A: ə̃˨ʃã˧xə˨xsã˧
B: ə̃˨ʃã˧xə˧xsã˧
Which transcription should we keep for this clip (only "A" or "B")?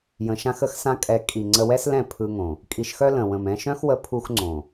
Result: B